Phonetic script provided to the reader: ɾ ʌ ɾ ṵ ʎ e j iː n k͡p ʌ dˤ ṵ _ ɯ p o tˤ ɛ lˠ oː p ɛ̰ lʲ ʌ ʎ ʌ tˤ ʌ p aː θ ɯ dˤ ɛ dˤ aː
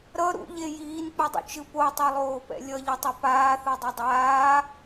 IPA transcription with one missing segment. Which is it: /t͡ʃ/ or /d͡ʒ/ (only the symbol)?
t͡ʃ